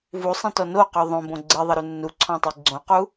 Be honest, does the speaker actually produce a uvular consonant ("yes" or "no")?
yes